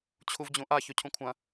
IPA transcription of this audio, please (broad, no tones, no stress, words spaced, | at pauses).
t͡ɕʰuvd͡ʑũʔa çɵcʰũkʷʰɐ̃